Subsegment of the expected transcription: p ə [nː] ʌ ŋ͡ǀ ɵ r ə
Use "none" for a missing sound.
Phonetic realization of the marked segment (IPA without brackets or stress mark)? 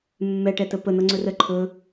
n̪